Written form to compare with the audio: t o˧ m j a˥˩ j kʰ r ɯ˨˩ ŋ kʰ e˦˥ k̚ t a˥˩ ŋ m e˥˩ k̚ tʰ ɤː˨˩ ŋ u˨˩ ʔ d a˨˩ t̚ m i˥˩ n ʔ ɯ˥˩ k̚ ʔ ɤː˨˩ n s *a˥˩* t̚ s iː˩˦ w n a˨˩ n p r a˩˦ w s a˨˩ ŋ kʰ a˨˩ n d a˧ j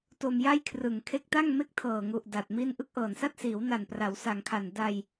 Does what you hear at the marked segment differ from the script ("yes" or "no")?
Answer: no